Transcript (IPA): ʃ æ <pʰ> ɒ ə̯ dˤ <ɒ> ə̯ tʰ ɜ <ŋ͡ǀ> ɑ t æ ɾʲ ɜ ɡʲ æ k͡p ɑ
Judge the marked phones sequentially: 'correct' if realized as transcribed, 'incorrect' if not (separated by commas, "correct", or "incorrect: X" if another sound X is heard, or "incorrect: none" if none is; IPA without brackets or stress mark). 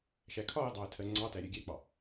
incorrect: kʰ, incorrect: ɑ, correct